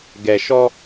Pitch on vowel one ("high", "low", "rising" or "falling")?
low